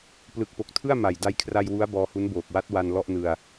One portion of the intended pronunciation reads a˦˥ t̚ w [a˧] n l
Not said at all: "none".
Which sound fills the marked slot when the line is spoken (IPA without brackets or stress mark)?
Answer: a˧